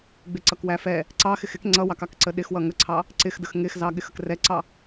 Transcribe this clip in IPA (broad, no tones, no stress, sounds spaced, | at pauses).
ɡ͡b ɪ ǀ ʌ k w æ f ɛ | ǀ ɑ x ɪ x ɪ k ŋ͡ǀ ʌ w ɑ k ɑ k ǀ ə ɗ ɪ x w ʌ ŋ ə ǀʰ ɑ | ǀ ɪ x d ə x ŋ ɪ x z ɑ ɠ ɪ x ə k r ɛ ǀ ɑ